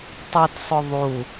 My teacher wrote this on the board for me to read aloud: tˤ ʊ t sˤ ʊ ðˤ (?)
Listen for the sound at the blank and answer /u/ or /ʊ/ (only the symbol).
u